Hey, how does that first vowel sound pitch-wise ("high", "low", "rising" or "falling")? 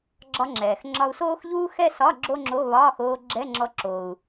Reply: high